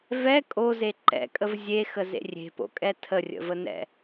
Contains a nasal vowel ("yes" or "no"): no